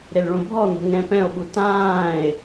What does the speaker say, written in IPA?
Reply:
ɾ e l ɭ õ bʱ ɔ n̪ o̤ ŋ ɛ̃ p ɛ̃ o̯ ɓ u t ãː e̯

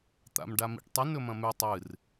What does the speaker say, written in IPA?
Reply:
t̪ a̰ m ɖ a m ḭ ʈ tˤ ɨ n ɵ m ɐ̃ m ʉ tˤ ɨ r

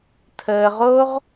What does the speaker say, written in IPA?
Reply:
tʰ əː˧ ʁ o˦ ʁ

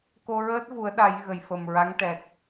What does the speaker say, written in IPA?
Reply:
k o˧ ɹ əː˦˥ t̚ v u˨˩˦ ə̯ ɗ a˨˩˦ j ɣ ə˨˩ j f ə˨˩ m ɹ a˧˥ ŋ ʈ ɛ˨˩ k̚

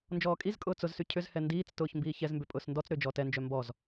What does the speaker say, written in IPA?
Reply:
n d͡ʒ ɔː kʼ i z kʼ ʊː t͡s ʊ z s y cʰ ʏ z h ɛ n d iː t͡s t ʊː ç m b iː ç ɛ z m b ʏ pʼ ʊː s n d ɔ t͡s ɾ ʏː d͡ʒ ɔː t ɛ n d͡ʒ œ m b ɔ z

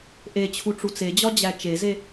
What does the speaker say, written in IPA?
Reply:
ʔ e t͡ɕʰ u ʈ͡ʂ u t͡s e d͡ʑ ɒ d͡ʑ æ t͡ʃ e z e

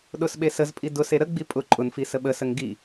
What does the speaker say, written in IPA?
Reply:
ɗ ʊ s ɓ e s ə z pʼ i d ʊ s e ɾ ə ɡ͡b i pʼ ʊ ǃʼ ʊ n f i s ə ɓ ə s ə ŋ ɡ i

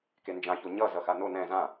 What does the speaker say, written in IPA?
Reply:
k e n d͡ʒ ã ç o ɲ ʌ z ʌ x a n o n ɛ̃ z ã

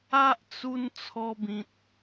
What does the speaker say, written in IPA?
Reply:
a˦ ʔ t͡s u˧ n t͡sʰ ɔ˧ b ĩ˨ t̚

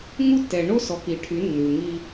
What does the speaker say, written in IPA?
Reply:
ŋ u˦ tː ɛ˨ ɳ o˦ s ɔ˨ k i˨ ʈʰ y˨˦ nː ʉ˨ ŋ i˦

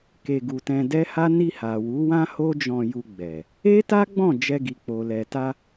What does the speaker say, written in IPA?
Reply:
k e˧ ɡ u˧ t ɛ̃˧ d ɛ˦ h a˦ n i˧ h a˨ w u˨˦ w ã˦ h o˦ d͡ʒ ɔ̃˧ j u˧ ɡ͡b ɛ˨ | e˦ t a˦ ɡ͡b ɔ̃˦˨ d͡ʒ ɛ˧ ɡ i˨ k͡p o˨ l ɛ˨ t a˧

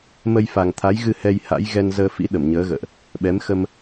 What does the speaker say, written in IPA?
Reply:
m ə˧ j f a˨˩ ŋ t̪ʰ a˨˦ j ɣ ɨ˧ h ɛ˧ j h a̰˧˥ j ɣ ɛ˧ n z əː˧ f ḭ˧˥ ɗ ə˧˩ m ɲ əː˨˦ ɣ ə̰ː˧˨ ʔ | ɓ ɛ˨˦ m x ə˧ m

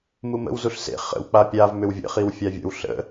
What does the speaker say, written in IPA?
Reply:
m u m ə̰ w z u ɬ s ḛ χ ə̰ w k͡p a pʲ a v m ʏ w vʲ ə̰ χ i w fʲ a vʲ ə̰ w ɬ ə̰

